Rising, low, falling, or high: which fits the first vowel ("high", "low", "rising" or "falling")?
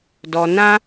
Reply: low